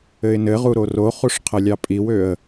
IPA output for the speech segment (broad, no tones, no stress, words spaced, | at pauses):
ɘɪ̯nɘʁu ɾoroχuʂ qʰɘlʲɑpʼiwøə̯